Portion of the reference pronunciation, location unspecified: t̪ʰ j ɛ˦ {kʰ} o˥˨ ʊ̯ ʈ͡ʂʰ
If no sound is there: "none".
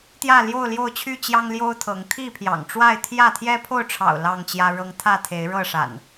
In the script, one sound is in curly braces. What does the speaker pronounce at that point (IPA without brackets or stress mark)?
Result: pʰ